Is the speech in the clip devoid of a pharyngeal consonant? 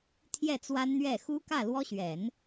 yes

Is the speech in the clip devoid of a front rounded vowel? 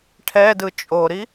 yes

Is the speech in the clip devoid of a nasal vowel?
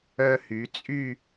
yes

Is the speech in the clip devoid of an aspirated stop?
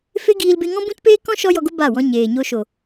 yes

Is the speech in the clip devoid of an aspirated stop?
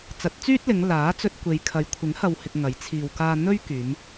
no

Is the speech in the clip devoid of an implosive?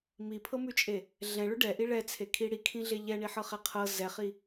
yes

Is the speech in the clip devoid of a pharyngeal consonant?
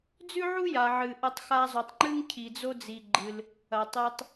no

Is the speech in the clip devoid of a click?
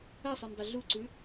no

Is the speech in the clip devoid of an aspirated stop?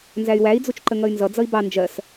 yes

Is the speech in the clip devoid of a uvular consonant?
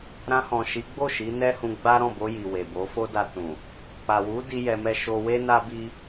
yes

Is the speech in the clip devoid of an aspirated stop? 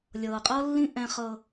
yes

